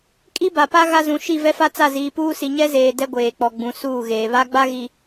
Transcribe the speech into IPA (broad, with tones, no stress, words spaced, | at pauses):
kʼi˦ba˨pa˦ ɣa˦zũ˨˦ ʃi˦˨vɛ˦fa˦ t͡sa˦˨ziː˨puː˦si˨ ɲɛ˦zeː˨ dɛ˦ɡʷeː˨k͡pɔ˨ ɡ͡bũ˨˦suː˦˨ɣeː˨ βa˦ɡ͡ba˦ɣi˨